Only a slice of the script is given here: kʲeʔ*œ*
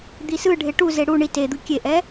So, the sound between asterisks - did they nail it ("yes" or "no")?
no